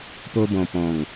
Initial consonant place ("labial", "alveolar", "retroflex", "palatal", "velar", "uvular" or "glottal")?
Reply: labial